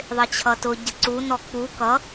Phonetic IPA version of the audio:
ðˤ ɪ t͡ɕʰ ʌ t ʊ ɟ ə ǀ u n ɔ k͡p u k ʌ

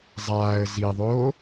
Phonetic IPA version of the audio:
zˤ aː ə̯ z i ðˤ oː

